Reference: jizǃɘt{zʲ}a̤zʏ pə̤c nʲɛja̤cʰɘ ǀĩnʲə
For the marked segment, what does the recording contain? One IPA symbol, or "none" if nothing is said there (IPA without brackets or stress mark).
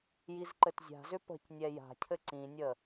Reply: zʲ